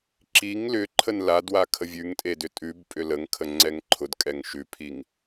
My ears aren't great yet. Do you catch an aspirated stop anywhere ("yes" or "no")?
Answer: yes